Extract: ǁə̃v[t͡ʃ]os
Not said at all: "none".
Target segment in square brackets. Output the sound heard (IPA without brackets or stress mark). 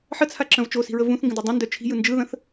t͡ʃ